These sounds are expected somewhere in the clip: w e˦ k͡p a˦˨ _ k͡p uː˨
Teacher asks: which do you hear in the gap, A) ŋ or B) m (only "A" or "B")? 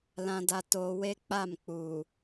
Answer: B